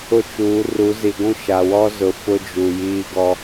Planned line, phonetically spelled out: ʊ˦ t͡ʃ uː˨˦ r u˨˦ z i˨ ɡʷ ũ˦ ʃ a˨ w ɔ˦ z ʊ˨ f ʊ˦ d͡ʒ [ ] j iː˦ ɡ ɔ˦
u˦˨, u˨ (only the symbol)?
u˨